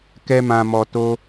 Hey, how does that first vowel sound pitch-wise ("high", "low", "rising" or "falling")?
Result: high